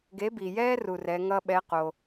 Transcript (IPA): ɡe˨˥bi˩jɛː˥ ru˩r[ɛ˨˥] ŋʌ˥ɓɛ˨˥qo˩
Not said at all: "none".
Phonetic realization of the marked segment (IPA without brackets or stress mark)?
ɛ˩˧